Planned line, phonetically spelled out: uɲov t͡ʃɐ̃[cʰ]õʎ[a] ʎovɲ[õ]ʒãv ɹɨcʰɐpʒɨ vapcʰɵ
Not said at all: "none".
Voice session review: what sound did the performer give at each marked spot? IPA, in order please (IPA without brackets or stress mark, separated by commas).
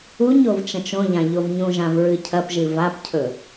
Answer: t͡ʃ, ã, ũ